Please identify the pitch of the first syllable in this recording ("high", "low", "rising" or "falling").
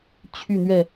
falling